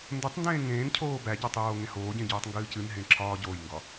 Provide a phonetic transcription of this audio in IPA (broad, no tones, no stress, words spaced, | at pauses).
ndotˤndẽː ŋẽːncʰoː bæɟɒtˤ joːŋẽhoːɟẽ ɟoːtˤŋɡɨːcɨnɦẽ ǁʰɒːɟoːjŋɡɒ